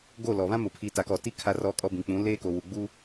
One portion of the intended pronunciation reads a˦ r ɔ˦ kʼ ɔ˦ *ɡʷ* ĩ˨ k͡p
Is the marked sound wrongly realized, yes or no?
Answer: yes